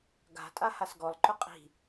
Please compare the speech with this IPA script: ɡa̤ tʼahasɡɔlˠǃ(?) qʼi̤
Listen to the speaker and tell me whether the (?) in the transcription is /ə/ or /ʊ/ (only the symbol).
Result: ʊ